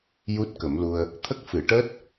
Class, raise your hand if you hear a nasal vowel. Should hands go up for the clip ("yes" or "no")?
no